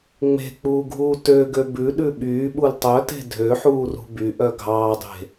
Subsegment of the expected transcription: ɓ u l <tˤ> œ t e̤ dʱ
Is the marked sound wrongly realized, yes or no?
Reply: no